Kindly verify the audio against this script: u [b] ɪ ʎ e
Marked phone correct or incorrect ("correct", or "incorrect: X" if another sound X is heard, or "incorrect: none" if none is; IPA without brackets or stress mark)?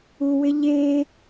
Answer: incorrect: w